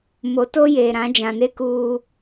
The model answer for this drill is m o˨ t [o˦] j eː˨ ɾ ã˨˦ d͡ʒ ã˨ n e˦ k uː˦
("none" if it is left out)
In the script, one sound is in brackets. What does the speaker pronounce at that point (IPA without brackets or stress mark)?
o˦